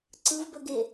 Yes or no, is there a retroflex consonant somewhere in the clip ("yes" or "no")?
no